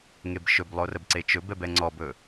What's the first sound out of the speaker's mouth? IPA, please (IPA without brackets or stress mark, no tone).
ŋ